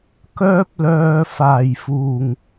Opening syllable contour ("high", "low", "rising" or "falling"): high